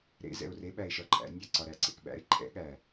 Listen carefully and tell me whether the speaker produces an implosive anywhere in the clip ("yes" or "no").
yes